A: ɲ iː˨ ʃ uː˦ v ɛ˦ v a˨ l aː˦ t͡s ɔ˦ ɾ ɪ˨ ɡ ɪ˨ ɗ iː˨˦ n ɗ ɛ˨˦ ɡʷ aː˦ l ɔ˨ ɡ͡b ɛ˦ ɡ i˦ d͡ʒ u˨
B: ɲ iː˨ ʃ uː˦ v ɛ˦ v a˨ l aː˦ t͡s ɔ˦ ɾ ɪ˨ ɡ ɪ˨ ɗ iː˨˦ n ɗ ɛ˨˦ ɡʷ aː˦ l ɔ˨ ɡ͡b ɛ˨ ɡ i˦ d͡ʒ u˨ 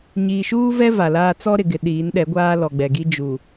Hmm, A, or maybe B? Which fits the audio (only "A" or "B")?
B